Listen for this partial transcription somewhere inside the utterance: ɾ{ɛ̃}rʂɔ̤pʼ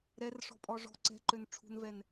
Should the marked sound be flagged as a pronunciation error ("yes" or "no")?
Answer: yes